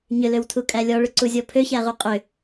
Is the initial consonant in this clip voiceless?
no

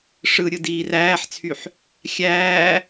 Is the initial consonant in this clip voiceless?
yes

